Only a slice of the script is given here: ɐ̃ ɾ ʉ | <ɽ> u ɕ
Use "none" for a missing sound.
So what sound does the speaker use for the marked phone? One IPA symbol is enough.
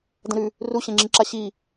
r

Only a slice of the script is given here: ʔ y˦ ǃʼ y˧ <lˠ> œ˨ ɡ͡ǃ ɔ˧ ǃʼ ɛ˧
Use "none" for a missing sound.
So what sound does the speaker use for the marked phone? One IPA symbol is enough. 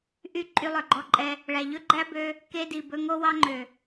lˠ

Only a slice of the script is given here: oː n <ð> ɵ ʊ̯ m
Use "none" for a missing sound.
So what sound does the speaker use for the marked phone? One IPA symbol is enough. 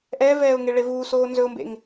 z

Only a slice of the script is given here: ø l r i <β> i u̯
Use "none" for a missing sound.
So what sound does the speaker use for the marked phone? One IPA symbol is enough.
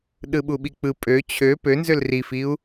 f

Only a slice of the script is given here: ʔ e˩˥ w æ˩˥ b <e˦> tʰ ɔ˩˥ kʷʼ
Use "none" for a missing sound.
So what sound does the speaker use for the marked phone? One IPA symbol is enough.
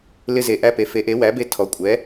e˦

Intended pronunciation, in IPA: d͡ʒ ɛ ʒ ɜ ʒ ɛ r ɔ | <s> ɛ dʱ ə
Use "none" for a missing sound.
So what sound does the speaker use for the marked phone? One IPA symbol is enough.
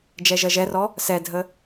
s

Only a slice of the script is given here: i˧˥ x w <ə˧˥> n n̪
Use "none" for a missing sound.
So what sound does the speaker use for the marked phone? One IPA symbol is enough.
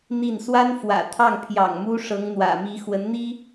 ə˧˥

